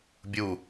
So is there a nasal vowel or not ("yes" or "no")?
no